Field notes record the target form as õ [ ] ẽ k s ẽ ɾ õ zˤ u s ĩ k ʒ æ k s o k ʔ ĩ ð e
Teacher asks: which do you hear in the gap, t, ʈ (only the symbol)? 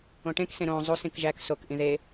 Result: ʈ